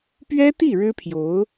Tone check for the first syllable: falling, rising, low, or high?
high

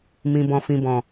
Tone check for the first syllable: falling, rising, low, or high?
low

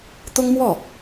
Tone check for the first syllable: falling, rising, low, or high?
high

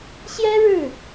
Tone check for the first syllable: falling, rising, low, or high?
high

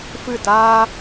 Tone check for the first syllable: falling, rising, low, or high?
falling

